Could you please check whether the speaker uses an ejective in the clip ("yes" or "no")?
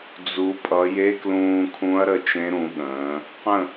yes